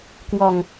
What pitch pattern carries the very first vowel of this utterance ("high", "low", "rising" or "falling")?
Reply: low